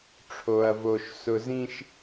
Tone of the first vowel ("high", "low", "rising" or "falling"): low